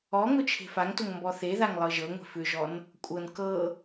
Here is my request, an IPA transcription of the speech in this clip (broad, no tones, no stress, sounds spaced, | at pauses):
ɔ ŋ ʊ t͡ʃʰ e̤ f a ŋ t o ŋ m b ɔ θ e ð a ŋ lˠ ɤ ʒ ɤ ŋʷ e̤ f ʏ ʒ ɔ n | kʷʼ ɤ n k ɤ